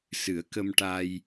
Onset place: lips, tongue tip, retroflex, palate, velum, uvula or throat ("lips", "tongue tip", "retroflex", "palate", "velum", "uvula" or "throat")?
tongue tip